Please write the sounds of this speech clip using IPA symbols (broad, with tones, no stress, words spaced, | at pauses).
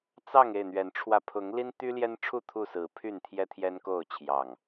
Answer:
t͡sɑ˥˨ŋ e˥˨ɪ̯n̪ɥɛ˨˦nʈ͡ʂʰwä˧ pʰʊ˨˦ŋ li˦nt̪y˦ljɛ˦nʈ͡ʂʰu˥˨ t̪ʰu˥˨sɹ̩˨˦ pʰy˥˨nt̪ʰjɛ˦ t̪ʰjɛ˦nko˥˨ʊ̯ t͡ɕʰjɑ˨˩ŋ